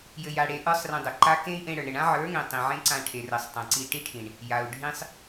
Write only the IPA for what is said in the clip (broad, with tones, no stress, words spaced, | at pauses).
jɘ˧ja˧ɽe˧ ʔə˞˦sˤrĩ˧dˤɘ˨ǃa˦ kẽ˦i̯ʔẽ˧ɽə˞˨ɳɾɘ˨ɳ ã˦ʕə˞˨˦ŋẽ˨ tˤĩ˨ ʕẽ˦ǀã˧ʈʰe˨rɘ˨sˤ tˤẽ˨ǀi˧ʈi˦ʈʰĩ˨ɳ | ja˨u̯ ɖʱĩ˧sˤ